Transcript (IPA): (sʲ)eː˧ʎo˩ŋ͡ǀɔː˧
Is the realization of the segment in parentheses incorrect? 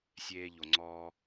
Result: no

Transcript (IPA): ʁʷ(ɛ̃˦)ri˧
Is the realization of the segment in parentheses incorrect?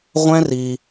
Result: no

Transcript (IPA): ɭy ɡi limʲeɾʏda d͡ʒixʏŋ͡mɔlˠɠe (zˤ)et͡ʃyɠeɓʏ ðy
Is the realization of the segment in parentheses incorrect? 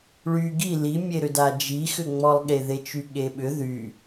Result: yes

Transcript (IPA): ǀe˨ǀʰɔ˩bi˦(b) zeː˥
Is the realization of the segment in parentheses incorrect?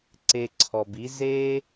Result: yes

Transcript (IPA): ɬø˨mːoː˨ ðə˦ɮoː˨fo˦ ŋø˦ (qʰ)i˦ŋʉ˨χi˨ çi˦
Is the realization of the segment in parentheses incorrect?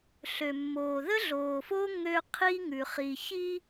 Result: no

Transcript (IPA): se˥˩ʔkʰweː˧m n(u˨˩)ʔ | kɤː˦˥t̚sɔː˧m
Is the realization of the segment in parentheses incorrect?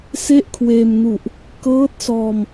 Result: no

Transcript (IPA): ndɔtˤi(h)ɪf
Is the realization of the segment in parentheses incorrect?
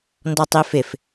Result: yes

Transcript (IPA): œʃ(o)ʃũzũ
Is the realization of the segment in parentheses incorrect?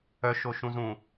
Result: no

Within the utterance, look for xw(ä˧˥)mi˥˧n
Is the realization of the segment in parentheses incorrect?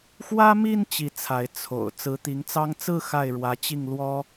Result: yes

